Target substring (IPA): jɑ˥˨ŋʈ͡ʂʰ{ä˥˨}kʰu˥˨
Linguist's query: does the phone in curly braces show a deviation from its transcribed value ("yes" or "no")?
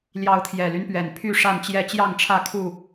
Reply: no